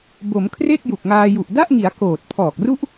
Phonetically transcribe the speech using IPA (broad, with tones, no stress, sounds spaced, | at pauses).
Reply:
b o˩˦ m kʰ r e˥˩ k̚ j u˨˩ k̚ ŋ aː˧ j u˨˩ ʔ d a˥˩ ʔ ŋ i˩˦ a̯ k oː˨˩ t̚ pʰ ɔː˨˩ k̚ r u˥˩ ʔ